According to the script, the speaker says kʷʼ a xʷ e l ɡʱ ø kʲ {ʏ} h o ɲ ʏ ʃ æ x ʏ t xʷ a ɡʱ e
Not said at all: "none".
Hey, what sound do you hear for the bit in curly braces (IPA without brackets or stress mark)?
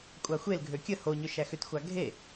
ə